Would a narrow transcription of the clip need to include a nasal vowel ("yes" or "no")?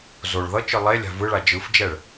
no